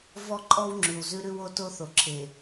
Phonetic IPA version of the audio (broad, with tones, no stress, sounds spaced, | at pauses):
v ɔ˦ ǃʼ ɔ˦ w ŋ͡ǁ ʉ˨ w z ʉ˦ ɾ ʉ˦ w o˦ t o˦ θ o˨ ǁʰ e˨